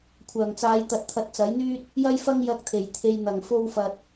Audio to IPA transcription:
kʷʰ œː˨˩ ŋ t͡s aː˨˧ j t̪ ɐ˨ t̚ t̪ʰ ɐ˧ t̚ t͡s ɐ˨˥ j n̪ yː˥ t̚ | j ɐ˥ j f ɐ˥ ŋ j ɐ˧ k̚ t̪ʰ e˨˩ j t̪ʰ e˨ j n̪ ɐ˨˩ ŋ f o˧ w f ɐ˨ t̚

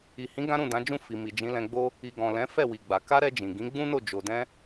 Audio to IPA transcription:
i˨ h ĩ˨˦ ɡ ã˦ ɾ ũ˦˨ d ã˨˦ d͡ʒ ũ˦˨ f i˨ m i˨ d͡ʒ ĩ˨˦ l ɛ̃˧ ɡ͡b o˦ | i˨ ɡ ɔ̃˨ l ɛ̃˨˦ f ɛ˦˨ w i˨ ɡ͡b a˨ k a˧ ɾ ɛ˧ d͡ʒ ĩ˨ ɡ ĩ˨˦ ɡ͡b ũ˦ n o˦˨ d͡ʒ o˨ d ɛ̃˧

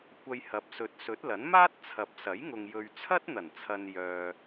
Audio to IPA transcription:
kʷ ɐ˧ j h ɐ˨˥ p̚ s ɵ˨˥ t̚ s ɵ˨˥ t̚ l ɐ˨˥ n m aː˥ t̚ t͡sʰ ɐ˨˥ p̚ s ɐ˨˥ j ŋ ʊ˨ ŋ j ɵ˨ ɥ t͡sʰ ɐ˥ t̚ n̪ ɐ˨˩ n t͡sʰ ɐ˨ n j œː˨

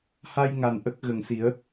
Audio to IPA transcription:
h a˧ j ŋ a˨˩ n ʔ ə˦˥ k̚ ɣ ə˨˩ ŋ s i˨˩˦ ə̯

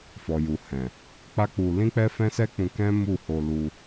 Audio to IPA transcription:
f ɔ˨ j u˨ h ɛ̃˨ | k͡p a˦ k͡p u˧ l ĩ˦ k͡p ɛ˦ f ɛ̃˦ s ɛ˦ k͡p ũ˧ k ɛ̃˦ m u˦˨ h o˧ l u˧

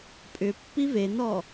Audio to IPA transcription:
pʼ ʏ pː i v e n ɔ

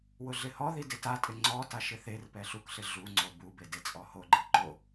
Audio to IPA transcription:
w ʊ ɮ ɪ h ɔ ð i d ɪ t a tʼ ɪ ŋ͡ǀ ɔ t a ʃ ɪ θ e r p ɛ ɬ u k ɬ ɪ ɮ u ŋ͡ǀ o b u b e d e t͡sʼ ɔ h o ɡ͡ǃ i ǃ o

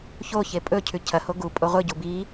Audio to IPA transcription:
ç o ç e pʼ ɵ cʰ ʉ cʰ ɐ h o ɡ u pʼ o ʁʷ ɨ ɟ u b i

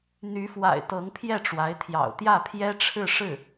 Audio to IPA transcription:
n̪ y˧˥ f w a̰˨˩ ɪ̯ t̪ ɤ˧˥ ŋ pʰ j ɛ˥˩ ʈ͡ʂ w a˧˥ ɪ̯ t̪ʰ j ɑ̰˨˩ ʊ̯ t̪ j ä˥˩ pʰ j ɛ˥ ʈ͡ʂʰ ɻ̩˥˧ ʂ ɻ̩˥˩

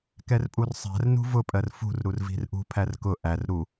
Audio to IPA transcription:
k ɛ r pʼ u r sˤ æ̤ r n ṳ v ʊ pʼ ɜ r f ṳ r ɾ u r v i̤ r ʔ ṳ pʰ æ r k ʊ ʔ æ r ɾ u

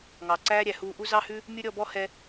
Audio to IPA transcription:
ŋ ɑ˨ ǀ æː˦ ɾʲ æ˨ h uː˧ ʔ u˦ z ɑ˦ h ʉ˦ | mʲ u˦ ɾʲ ɔ˧ b ɔ˦ h ɛ˦

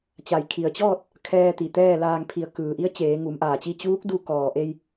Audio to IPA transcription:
t͡ɕ a˩ j kʰ i˩ ə̯ t͡ɕ ɔː˥˨ t̚ | kʰ ɛː˧ t̪ i˩ t̪ ɛː˥˨ l aː˧ ŋ pʰ i˧˩ ə̯ k ɯː˩ ʔ i˧˥ ə̯ t͡ɕ eː˩˧ ŋ u˩˧ m ʔ aː˩ t͡ɕ i˥˨ t͡ɕ uː˧˥ k̚ d u˧ k ɔː˩ ʔ e˧ j

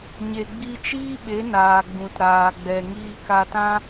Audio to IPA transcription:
ɲ e˨ ɡ͡b i˧ t͡ʃ iː˦ ɓ e˨˦ n aː˨ ɡ͡b ũ˨ t ɾ aː˨ ɡ͡b ɛ˨ ŋ iː˧ k a˧ t ã˦

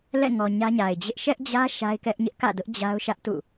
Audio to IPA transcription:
l ɛ̰˦˨ ŋ ɔ˨ ɲ ä˦ ɲ a˨ ɪ̯ d͡ʑ ɪ˦ ʔ ʃ ɛ˦ ʔ d͡ʑ ä˦ ʃ a˦ ɪ̯ k ɛ˦ ʔ ɲ ɪ˦ ʔ k ä̰˦˨ d ʊ˦ ʔ d͡ʑ a˦ ʊ̯ ʃ ä˦ ʔ t ṵ˦˨

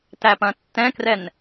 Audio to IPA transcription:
t æ p ɐ̃ tː ɛ̃ k r ɛ n

